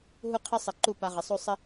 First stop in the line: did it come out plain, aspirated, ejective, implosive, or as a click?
aspirated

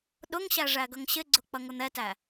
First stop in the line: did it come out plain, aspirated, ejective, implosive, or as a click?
implosive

